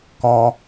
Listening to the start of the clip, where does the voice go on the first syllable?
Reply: high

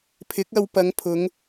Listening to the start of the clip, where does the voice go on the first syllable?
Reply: rising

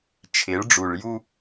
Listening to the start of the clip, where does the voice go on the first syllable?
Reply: rising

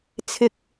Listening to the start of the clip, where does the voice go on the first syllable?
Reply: low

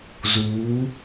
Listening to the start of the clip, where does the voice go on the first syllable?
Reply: rising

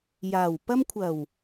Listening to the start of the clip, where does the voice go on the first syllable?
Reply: low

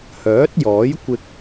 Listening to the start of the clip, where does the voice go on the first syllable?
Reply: rising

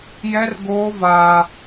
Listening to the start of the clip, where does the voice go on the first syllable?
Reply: high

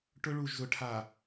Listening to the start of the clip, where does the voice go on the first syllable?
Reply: high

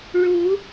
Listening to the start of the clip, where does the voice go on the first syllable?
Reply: rising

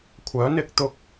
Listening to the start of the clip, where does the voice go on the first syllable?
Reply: rising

